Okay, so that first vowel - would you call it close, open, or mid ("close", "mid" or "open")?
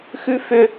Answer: close